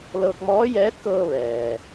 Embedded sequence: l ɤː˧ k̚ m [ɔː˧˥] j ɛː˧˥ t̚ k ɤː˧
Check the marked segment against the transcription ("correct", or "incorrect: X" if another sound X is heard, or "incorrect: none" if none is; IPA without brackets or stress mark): correct